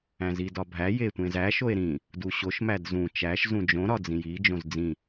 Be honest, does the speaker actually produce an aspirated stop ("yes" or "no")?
no